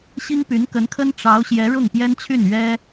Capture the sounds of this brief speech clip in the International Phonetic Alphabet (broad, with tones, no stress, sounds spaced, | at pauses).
ɕ i˥ ŋ p y˧˥ n k ə˧˥ n kʰ ə˥ n ʈ͡ʂ ɑ˧˥ ʊ̯ ɕ j ɛ˧˥ ɻ ʊ˥˩ ŋ p j ɛ˥ n t͡ɕʰ y˥˩ n ɥ ɛ˥